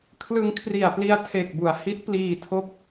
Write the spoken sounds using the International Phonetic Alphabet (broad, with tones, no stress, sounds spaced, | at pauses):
kʰ l ɯ˧ ŋ kʰ r i˨˩ a̯ p l i˧ a̯ tʰ e˨˩ k̚ b u˨˩ a̯ h i˦˥ t̚ p l iː˧ tʰ o˦˥ k̚